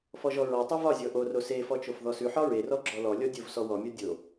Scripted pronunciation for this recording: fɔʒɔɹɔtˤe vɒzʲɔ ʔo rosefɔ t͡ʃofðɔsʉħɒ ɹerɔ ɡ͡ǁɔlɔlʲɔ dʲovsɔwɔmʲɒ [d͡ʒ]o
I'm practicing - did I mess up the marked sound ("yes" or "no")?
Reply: yes